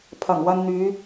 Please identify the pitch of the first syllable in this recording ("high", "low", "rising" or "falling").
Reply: low